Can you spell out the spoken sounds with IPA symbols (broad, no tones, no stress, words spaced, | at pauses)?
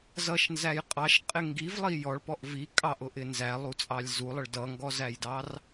zʌʃnzæj qʼɑʃqʼɪ ŋɡivlˠi jɔɭpɔʔ vi kʼɑʔʊʔɪ nzælˠut͡sʼɑlʲ zulˠəɭ dʌŋɡɔzæjdɑr